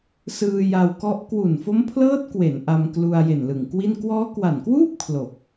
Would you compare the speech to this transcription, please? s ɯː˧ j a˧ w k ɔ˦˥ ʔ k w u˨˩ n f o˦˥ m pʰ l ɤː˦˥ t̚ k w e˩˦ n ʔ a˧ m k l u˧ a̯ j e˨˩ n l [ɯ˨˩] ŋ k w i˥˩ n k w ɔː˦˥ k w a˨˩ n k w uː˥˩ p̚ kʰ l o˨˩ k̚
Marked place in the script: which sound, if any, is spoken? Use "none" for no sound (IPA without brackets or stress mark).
ɯ˨˩